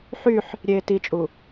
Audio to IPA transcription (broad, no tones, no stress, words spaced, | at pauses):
ħyħ | ɾʲeːtit͡ʃʼu